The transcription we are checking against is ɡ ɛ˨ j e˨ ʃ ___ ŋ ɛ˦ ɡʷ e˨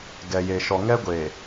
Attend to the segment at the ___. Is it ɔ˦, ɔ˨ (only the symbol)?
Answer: ɔ˨